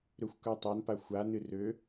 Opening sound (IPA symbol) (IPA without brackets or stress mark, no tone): ɾ